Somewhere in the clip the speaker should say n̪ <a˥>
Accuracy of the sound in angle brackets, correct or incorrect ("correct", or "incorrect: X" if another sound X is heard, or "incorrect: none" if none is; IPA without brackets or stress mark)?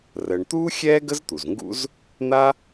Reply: correct